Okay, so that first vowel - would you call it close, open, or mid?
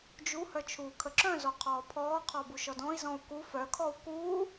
close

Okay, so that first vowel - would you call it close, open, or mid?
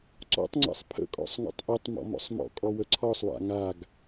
mid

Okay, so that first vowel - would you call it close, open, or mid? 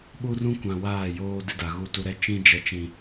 close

